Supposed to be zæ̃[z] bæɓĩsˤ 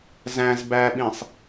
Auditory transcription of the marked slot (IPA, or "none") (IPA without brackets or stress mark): z